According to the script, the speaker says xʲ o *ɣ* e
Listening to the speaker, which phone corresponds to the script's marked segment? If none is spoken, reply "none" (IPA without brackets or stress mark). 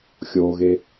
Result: ɣ